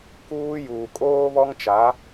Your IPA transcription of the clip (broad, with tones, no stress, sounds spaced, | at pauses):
k uː˦ j uː˨ kʼ oː˦ β ɔ˦ ŋ t͡ʃ a˨˦